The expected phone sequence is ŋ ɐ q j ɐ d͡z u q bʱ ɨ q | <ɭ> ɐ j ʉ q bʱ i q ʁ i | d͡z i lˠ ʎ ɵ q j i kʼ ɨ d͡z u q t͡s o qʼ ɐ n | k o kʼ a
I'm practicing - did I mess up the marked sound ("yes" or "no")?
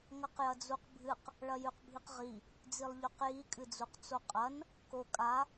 no